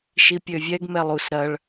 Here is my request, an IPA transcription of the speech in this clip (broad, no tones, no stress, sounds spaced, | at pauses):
ʃ i pʲ ø vʲ ɛ ɡ m ɛ lˠ u s ɾ ɐ ɭ